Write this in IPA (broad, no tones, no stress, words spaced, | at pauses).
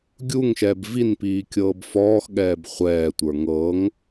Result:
ɡʲuŋʃɛːb vinpiː kʲɤːbfɔːxɠɛːb χʷɛːtʷə˞ ŋɤŋ